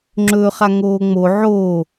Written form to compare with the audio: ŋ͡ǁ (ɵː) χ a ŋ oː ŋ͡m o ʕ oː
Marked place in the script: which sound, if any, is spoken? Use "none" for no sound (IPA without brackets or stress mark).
ɵː